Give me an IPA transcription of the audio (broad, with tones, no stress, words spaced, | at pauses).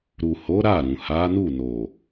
ɾu˨ho˨˦ ɾa˦˨ɾũ˨ ha˨˦nu˦˨no˨